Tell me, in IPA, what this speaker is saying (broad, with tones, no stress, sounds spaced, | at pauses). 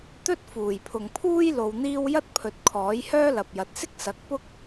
t̪ ɵ˥ t̚ f uː˨˩ j pʰ ʊ˨ ŋ pʰ uː˥ j l o˧ w n̪ iː˥ w j ɐ˥ t̚ pʰ ɵ˨˥ t̚ kʰ ɔː˨˥ j h œː˥ l ɐ˨ p̚ j ɐ˨ t̚ s ɪ˥ k̚ s ɐ˨˥ k̚ p ʊ˥ k̚